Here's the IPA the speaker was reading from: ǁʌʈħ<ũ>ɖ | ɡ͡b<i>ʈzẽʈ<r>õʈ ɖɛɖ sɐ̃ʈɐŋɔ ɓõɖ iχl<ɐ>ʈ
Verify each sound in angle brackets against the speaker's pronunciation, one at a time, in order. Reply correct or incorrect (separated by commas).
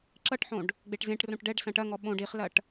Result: incorrect, incorrect, correct, correct